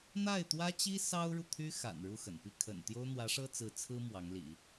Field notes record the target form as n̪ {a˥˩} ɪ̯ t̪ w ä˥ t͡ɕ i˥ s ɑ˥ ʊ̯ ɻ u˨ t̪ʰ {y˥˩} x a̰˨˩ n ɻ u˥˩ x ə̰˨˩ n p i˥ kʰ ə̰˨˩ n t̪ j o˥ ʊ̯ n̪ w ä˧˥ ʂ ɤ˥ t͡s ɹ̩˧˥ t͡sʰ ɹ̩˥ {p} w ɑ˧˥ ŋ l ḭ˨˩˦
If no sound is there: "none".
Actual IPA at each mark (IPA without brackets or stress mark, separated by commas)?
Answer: a˥˩, y˥, m